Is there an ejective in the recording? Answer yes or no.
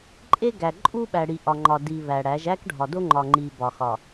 yes